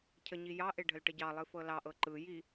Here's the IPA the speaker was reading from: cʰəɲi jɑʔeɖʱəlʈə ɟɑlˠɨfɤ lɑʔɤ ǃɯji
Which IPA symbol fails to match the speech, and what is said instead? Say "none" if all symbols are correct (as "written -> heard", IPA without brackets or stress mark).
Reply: none